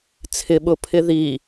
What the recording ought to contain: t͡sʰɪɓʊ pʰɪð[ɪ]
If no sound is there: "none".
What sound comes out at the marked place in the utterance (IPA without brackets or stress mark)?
i